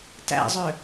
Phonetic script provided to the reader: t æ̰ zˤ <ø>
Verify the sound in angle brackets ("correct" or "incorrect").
correct